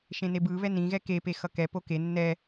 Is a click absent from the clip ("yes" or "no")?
yes